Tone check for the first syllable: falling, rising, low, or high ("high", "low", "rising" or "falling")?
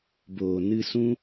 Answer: low